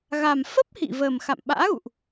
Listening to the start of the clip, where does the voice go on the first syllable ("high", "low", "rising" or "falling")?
low